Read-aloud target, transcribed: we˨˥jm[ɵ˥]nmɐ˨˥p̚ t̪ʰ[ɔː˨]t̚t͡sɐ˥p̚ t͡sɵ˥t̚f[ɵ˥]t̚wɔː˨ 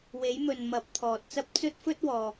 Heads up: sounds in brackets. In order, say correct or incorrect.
incorrect, correct, correct

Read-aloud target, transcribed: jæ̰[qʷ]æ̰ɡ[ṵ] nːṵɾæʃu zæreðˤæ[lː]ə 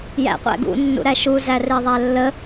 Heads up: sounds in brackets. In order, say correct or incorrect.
correct, correct, correct

